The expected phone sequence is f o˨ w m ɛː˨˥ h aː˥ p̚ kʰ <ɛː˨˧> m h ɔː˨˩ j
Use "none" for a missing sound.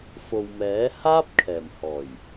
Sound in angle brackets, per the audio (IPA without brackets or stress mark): ɛː˨˩